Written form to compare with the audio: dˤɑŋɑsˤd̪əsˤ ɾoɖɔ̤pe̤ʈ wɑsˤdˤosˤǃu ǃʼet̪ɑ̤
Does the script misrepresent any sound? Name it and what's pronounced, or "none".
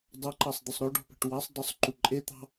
ŋ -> ǃ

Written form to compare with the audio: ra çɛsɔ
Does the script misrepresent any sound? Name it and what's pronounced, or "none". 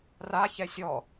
s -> sʲ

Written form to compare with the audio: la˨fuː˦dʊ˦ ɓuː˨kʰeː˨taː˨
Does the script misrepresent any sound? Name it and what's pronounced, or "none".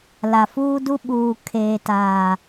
ʊ˦ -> u˦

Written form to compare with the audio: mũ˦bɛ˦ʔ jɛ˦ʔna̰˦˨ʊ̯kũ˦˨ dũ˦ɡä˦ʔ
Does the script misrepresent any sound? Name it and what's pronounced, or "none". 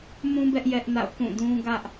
none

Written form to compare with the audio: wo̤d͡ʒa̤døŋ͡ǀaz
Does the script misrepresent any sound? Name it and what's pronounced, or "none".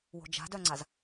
ø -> œ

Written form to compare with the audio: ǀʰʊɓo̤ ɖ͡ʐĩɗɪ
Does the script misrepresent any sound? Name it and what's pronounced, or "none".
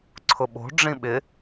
ɗ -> ɓ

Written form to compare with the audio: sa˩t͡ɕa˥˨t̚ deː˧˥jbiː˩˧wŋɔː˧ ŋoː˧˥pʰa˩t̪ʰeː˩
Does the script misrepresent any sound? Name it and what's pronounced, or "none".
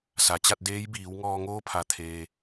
none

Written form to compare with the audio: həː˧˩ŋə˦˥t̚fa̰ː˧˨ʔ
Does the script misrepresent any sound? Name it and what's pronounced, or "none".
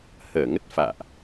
none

